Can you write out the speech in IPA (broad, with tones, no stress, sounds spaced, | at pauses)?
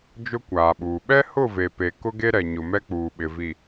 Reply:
d͡ʒ ʊ˦ kʷ aː˨ ɓ uː˨ ɓ ɛ˦ h ʊ˦˨ v e˨ p e˨ k ʊ˦ ɡ e˦ ɾ ɛ˨ ɲ ʊ˨ m ɛ˦ k͡p uː˨ ɓ ɪ˨ v i˨